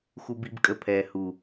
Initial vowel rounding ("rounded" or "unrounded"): rounded